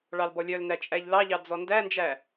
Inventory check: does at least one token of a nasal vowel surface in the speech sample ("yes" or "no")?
no